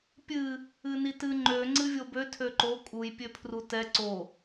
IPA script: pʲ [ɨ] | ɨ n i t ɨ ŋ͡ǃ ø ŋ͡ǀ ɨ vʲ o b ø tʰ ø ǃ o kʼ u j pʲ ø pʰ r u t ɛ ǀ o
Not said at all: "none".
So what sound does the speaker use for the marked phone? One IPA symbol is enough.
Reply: ɨ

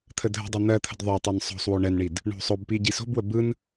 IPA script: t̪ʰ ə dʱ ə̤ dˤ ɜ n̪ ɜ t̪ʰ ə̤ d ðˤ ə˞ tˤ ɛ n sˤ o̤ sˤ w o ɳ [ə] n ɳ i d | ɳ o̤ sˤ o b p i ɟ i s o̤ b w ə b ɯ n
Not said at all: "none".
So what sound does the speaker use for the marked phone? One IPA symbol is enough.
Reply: ɛ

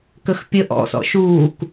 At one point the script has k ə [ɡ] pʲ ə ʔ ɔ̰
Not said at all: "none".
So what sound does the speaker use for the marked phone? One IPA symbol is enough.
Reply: x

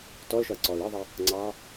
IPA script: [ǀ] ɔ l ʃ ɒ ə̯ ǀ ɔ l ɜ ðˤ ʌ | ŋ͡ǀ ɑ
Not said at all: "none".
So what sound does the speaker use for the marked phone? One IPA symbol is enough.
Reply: t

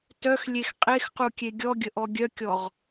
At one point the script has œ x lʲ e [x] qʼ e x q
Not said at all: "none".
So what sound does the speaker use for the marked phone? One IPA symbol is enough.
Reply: x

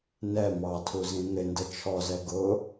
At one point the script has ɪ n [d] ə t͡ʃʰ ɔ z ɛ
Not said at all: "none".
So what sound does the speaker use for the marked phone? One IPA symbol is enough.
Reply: d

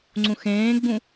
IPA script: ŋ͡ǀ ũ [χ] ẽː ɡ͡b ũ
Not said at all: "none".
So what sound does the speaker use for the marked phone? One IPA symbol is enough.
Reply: x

